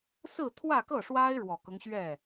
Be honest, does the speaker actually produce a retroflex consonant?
yes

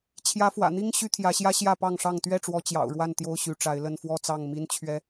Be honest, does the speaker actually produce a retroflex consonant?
yes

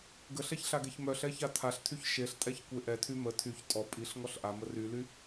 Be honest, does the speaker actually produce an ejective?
yes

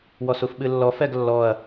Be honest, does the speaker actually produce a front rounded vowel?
no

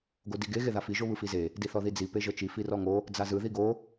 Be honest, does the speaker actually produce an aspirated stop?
no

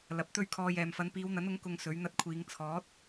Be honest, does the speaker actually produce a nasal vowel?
no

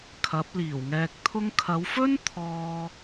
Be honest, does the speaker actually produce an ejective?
no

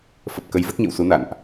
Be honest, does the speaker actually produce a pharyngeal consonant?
no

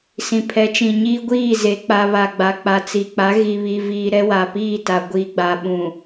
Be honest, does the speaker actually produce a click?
no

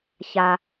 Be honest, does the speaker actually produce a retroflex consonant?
no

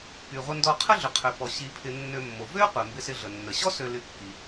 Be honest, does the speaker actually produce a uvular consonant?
yes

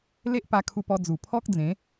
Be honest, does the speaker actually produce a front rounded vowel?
no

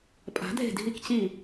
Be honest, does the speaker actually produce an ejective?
yes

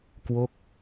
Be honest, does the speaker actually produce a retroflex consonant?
no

